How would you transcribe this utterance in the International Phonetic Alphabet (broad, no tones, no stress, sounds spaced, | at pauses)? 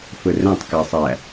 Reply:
f ɵ r ɛ̃ tˤ k æ sˤ æ